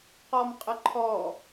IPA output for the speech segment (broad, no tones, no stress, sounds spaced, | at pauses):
q ɔ m qʼ ə ǃʰ ɔ